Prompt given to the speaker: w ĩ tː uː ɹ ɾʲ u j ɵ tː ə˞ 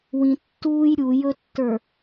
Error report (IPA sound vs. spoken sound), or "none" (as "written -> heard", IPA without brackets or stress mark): ɹ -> j